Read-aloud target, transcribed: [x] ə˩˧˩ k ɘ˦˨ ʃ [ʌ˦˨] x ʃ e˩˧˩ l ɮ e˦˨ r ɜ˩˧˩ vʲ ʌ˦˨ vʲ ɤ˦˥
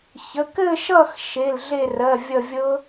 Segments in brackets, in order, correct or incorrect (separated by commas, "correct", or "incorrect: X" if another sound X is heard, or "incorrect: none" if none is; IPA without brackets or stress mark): incorrect: ç, correct